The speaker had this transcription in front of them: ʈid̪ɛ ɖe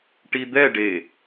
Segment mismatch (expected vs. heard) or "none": none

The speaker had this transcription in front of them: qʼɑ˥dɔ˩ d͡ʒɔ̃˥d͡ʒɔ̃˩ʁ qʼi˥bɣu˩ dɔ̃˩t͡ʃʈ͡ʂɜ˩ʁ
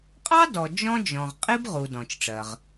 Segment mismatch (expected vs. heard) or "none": ɣ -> ʁ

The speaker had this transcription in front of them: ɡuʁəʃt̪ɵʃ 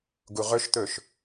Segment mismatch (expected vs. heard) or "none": ə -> ɵ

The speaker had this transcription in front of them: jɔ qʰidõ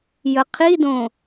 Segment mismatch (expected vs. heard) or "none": ɔ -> ə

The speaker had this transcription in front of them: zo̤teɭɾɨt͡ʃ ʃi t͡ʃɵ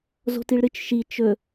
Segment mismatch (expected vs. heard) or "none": e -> i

